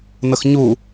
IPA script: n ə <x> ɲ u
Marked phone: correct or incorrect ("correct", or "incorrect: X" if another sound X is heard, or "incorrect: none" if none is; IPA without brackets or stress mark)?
correct